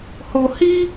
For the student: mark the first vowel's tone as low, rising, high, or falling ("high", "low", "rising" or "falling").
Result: low